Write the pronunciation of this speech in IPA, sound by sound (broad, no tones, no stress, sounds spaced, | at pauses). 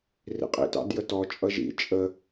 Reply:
r ḭ qʼ ḭ t ɑ̰ d j ə t ɔ t͡ʃʼ ʌ ʒ ḭ t͡ʃʼ ə